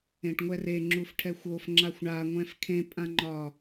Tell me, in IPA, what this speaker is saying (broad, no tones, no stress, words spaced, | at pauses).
ẽʈŋʷɛre ŋ͡ǁufʈʰɛxʷofŋ͡ǁaxʷ ɳaŋʷɛ̃f kʰẽpʼãŋ͡ǃɒ